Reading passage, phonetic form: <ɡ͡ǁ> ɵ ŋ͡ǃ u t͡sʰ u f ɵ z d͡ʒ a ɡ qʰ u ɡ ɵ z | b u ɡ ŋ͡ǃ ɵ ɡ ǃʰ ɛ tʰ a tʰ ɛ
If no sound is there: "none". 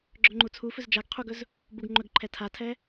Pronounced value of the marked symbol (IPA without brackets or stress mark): ɡ͡ǁ